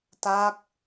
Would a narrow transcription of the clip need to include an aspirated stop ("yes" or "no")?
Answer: no